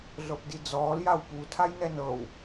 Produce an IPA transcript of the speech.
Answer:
ɮ ɤ p d i d͡z ɔː l j a w p u tʰ a j n ɛ n ɤ w

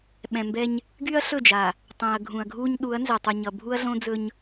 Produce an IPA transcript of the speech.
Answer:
ɓ ɛ̃˨ m b ɛ˦ ɲ | ɡ y˦ ɐ̯ ɬ ɵ˦˨ d͡ʒ a˨ | tˤ ɛ̃˨ ɐ̯ ɡʱ ũ˨ ɐ̯ ɡʱ u˦ ɲ ɗ u˨˦ ɐ̯ n z ɛ˨ tˤ u˨ ɲ ʌ˨ bʱ u˦ ɐ̯ ɮ õ˦ d͡z ɵ˦ ɲ

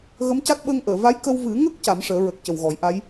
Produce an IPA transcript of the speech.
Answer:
ɣ ə˧˥ m c a˦˥ t̚ ɓ əː˧ ŋ ʔ əː˨˩˨ v a˧˥ j k ə˧ w v ɨ˨˩˦ ŋ ə˦˥ k̚ c a˨˩˦ m ʂ əː˨˩˦ ɹ ə˨˩ k̚ c ə˨˩ w ɣ ɔ˨˩˦ j ʔ a˧˥ j

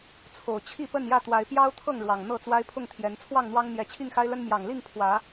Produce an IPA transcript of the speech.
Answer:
t͡sʰ o˨˩ ʊ̯ t͡ɕʰ i˥˨ p ə˥˨ n j ä˥˨ t̪ w a˨˦ ɪ̯ p j ɑ˦ ʊ̯ t̪ʰ ɤ˥˨ ŋ ɻ w ɑ˨˩ ŋ n̪ ɤ˥˨ t͡s w a˦ ɪ̯ pʰ ʊ˥˨ ŋ t̪ʰ j ɛ˨˦ n t͡sʰ w ɑ˥˨ ŋ n̪ w ɑ˦ ŋ n̪ j ɛ˨˦ t͡ɕʰ i˥˨ ŋ x a˦ ɪ̯ l ə˦ n m j ɑ˨˩ ŋ l i˥˨ ŋ pʰ w ä˨˦

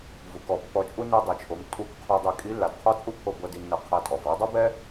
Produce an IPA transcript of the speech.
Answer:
v u˩ k ɔ˩ pː ɔ˧ t͡ʃʼ u˥ n i˧ dˤ i˩ t͡ʃʰ o˩˧ m tʼ u˧˥ k qʰ o˧ dˤ i˧ kʼ i˧˥ lː a˩ d qʰ ɔ˥ t͡sʼ u˥ pʰ o˧ b ɤ˧ d i˧ nː ɤ˧ qʰ a˧ tʼ ɔ˩ v ɔ˩˧ dˤ ɤ˥ b ɛ˥

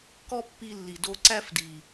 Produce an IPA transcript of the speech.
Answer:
k ɔ˦ pː i˧ lː i˨ d o˧ ǀ æ˦ f d i˨

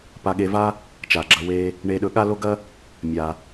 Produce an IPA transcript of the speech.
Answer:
p a˧ ɠ e˧ v a˥ | t͡ʃ a˩ ɡ͡ǁ ɐ˧ w e˧ | ɳ e˧ ɗ ɵ˧ ɠ a˥ l o˥ ɡ ɐ˥ | mʲ a˩

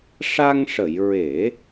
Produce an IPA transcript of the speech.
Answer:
ʂ a˧ ŋ ʂ ə˨˩˨ j ɹ e˨˩˦

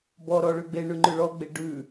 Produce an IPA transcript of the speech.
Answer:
b ɔ ɾ ɔ ɭ ʉ ɡ͡b e ɳ ʉ ŋ͡ǃ ʉ ɭ ɔ ɡ͡b e ɖ ʉ

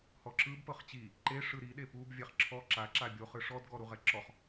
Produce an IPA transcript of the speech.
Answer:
h ɔ ǁ ɯ b p ɤ χ t͡ɕ i | ǃ e ʂ ɯ ɾ i ɗ e p u b vʲ ɛ χ ǁʰ ɔ ǁ a ǁ a bʲ o χ ɯ ʂ ɔ d ɡ ɔ ɾ u ʁ ɛ ǁ ɔ χ

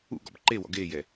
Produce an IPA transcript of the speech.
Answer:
ṵ ɡ ɔ̰ b ǃ e w ɔ̰ ɡ eː j ɛ

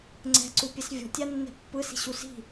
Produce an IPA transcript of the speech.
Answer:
ŋ͡ǀ ɛ̤ ǀ u pʲ ɛ s vʲ ɔ̤ tʲ a nː ɛ̤ pː ɯ s i̤ ɕ u s i̤

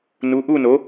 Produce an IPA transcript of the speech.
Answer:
n u˩˥ ʔ u˥˧ n o˩˥

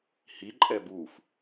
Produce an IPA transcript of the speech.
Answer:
h i ǃʼ ɛ b u f

